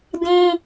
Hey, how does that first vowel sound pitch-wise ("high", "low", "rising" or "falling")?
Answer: high